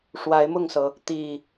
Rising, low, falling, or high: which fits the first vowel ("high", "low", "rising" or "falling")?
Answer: rising